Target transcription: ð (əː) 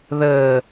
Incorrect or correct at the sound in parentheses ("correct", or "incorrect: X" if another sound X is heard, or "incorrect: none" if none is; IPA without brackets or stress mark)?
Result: correct